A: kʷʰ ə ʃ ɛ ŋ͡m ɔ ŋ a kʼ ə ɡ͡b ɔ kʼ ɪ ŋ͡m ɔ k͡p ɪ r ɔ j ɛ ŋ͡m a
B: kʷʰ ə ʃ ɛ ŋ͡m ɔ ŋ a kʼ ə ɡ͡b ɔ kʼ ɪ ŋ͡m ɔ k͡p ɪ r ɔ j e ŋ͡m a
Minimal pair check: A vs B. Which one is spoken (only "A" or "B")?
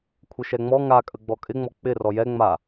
A